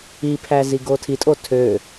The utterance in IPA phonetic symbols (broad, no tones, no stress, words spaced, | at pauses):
ipʰæ ziɡotʰitʼo tʰø